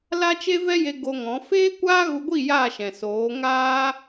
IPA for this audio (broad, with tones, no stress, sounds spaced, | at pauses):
l a˦ t͡ʃ e˦ v ɛ˦ j e˧ ɡ o˧ ŋ ɔ̃˨˦ f eː˦ kʷ aː˦ ɣ u˧ ɡʷ i˦˨ j a˦˨ ʃ ɛ̃˨ s oː˨˦ ŋ aː˦